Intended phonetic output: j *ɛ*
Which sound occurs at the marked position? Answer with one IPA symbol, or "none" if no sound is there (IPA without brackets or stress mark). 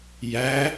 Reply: æ